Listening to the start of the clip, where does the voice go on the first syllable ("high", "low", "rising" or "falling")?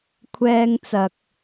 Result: high